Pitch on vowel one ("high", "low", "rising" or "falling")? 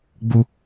high